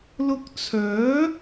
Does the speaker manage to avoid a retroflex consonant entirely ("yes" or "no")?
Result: yes